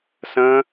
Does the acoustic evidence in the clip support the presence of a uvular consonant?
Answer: no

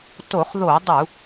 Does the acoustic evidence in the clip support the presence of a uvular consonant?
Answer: yes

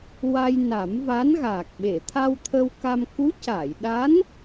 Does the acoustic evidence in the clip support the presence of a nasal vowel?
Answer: no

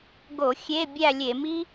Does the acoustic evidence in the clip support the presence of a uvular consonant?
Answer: no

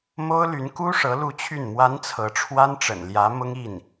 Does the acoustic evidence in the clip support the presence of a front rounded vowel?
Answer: yes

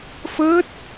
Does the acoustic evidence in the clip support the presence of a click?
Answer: no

